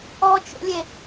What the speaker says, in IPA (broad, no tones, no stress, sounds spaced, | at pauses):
ɔ t͡ʃ o̰ lʲ e